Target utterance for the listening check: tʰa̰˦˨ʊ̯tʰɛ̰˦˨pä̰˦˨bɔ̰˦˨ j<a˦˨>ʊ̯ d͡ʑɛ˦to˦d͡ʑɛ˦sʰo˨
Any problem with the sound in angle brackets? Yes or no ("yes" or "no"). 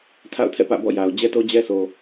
yes